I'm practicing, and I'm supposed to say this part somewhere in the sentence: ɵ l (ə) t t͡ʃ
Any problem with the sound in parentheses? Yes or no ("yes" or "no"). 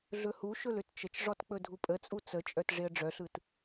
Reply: yes